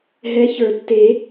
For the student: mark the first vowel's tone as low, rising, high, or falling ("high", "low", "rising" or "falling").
rising